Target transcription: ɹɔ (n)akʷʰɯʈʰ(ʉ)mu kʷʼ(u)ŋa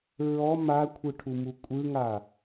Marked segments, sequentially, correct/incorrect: incorrect: m, incorrect: u, incorrect: ɯ

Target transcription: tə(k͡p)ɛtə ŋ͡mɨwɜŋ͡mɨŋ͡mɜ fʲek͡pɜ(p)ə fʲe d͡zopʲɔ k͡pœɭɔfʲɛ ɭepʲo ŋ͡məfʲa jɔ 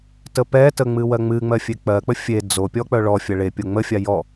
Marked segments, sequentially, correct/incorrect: incorrect: p, incorrect: k͡p

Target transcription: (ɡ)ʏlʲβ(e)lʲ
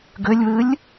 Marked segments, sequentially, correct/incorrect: correct, incorrect: ɨ

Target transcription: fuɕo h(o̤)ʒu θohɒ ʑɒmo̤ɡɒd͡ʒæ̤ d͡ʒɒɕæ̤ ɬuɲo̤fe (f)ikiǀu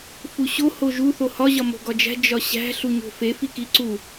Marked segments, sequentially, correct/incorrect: incorrect: o, correct

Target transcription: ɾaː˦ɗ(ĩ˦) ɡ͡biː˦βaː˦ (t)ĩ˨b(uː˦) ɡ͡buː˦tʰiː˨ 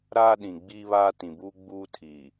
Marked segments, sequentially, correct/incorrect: incorrect: ĩ˨, correct, correct

